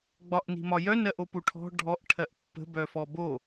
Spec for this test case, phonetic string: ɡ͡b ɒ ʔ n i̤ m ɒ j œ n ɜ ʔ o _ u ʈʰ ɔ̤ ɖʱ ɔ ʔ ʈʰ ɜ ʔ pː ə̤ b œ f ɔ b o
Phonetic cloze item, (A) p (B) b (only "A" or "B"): A